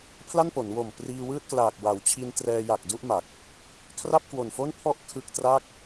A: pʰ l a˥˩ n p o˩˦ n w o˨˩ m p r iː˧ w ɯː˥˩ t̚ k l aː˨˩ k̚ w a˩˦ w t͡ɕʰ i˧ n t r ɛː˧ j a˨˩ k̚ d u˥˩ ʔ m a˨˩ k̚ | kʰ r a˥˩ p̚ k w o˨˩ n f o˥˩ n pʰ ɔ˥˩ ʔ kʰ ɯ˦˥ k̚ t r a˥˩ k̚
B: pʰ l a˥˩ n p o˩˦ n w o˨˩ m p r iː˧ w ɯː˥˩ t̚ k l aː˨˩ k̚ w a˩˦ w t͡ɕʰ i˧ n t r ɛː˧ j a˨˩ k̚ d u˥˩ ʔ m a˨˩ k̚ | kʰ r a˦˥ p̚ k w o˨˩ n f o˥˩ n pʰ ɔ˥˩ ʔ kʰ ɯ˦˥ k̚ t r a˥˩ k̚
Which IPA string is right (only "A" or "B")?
A